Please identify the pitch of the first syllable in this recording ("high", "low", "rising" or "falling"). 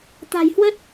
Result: low